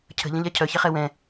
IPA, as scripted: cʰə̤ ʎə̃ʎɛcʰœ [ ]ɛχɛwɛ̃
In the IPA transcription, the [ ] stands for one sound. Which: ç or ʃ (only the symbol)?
ç